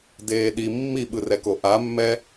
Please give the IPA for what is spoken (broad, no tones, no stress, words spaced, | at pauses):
deːɗi mːiɓɯrɛko ʔamːɛ